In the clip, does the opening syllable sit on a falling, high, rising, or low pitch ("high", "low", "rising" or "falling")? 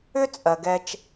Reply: high